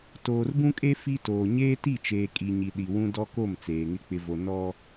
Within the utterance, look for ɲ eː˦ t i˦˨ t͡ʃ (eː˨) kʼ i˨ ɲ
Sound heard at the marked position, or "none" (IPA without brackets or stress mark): eː˨